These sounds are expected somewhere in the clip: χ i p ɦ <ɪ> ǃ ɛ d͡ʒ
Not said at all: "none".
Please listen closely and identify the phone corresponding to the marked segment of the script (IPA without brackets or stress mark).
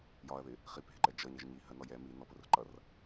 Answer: ɪ